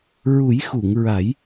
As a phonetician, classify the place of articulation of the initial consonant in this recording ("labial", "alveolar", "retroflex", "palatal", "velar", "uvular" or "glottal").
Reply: alveolar